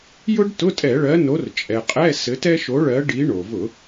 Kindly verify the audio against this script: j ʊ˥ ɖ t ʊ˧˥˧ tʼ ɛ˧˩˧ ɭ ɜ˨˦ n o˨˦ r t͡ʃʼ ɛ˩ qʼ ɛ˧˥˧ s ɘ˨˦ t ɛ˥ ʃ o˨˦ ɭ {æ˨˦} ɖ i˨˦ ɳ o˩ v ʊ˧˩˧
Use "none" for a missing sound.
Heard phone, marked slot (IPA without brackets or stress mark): ɜ˨˦